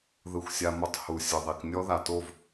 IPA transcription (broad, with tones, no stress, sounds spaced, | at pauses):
ð ɯ˧ xʷ sʲ a˧ m o˧ tˤ h u˨ sʲ ɯ˨ ðˤ i˨ k nʲ ɔ˦ ð a˨ t o˦˨ v